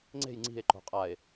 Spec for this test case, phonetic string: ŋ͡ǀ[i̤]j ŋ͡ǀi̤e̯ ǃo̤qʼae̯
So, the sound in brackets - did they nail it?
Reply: no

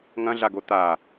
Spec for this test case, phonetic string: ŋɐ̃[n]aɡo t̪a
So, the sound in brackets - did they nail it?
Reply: no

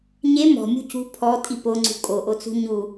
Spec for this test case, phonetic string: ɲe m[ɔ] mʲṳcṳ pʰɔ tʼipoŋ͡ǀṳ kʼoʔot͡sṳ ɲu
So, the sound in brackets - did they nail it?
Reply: no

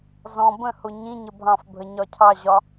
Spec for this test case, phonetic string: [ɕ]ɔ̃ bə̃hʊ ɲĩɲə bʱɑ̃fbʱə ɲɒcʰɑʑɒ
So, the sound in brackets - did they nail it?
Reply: no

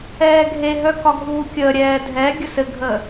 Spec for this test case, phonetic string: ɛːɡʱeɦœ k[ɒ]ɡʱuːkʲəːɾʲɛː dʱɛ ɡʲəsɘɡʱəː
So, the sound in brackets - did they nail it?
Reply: yes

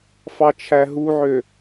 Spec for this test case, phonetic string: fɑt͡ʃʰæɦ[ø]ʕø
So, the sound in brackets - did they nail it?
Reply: no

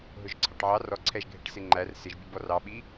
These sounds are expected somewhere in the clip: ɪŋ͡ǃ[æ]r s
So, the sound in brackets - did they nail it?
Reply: yes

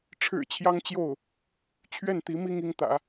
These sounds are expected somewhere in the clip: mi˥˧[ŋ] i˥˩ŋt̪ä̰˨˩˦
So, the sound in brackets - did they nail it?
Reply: yes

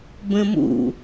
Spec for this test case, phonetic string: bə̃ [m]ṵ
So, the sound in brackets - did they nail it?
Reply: yes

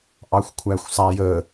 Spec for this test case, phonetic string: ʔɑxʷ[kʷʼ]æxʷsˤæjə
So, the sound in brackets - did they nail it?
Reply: no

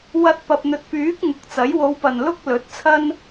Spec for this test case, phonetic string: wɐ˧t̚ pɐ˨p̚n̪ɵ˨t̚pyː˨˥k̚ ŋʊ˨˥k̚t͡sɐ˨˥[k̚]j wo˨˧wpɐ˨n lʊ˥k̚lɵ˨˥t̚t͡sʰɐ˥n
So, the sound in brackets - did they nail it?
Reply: no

